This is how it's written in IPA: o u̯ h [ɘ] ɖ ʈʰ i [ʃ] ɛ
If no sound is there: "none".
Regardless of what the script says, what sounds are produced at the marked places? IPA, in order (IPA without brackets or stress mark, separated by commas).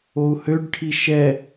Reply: ø, ʃ